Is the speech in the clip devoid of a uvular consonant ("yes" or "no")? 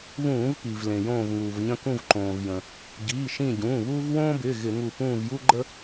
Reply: yes